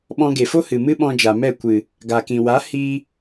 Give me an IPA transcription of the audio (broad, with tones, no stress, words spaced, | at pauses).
ɓɔ̃˧ɡe˨fo˦ hɨ˨mɨ˦ɓɔ̃˧d͡ʒa˨ mɛ˦˨kʷɨ˨ | ɡa˨kĩ˨wa˨˦ hi˧